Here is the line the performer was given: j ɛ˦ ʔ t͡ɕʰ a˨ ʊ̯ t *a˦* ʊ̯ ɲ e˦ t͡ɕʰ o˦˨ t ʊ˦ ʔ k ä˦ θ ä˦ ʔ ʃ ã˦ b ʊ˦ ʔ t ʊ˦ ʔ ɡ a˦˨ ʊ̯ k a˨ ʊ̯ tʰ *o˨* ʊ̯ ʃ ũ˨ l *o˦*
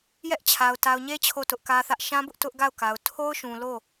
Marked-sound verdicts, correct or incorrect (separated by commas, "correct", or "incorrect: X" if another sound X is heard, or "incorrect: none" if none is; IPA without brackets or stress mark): incorrect: a˨, incorrect: o˦, incorrect: o˦˨